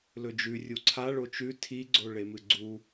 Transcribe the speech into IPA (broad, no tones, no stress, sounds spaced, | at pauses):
l ɵ d͡ʒ ʉ rʲ u ǀʰ a ɭ o t͡ʃ ʉ tʰ i ɡ͡ǀ o ɭ e m ɨ ɡ͡ǀ u